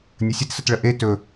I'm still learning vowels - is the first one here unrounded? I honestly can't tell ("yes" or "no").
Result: yes